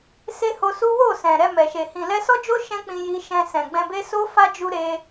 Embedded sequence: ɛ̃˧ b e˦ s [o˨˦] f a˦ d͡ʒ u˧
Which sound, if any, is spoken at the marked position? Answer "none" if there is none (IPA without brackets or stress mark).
o˦